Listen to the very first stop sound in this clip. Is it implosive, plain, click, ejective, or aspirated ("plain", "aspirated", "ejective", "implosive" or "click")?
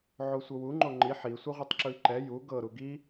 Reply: click